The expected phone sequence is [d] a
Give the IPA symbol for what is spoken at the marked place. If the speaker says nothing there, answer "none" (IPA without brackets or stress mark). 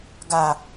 ɡ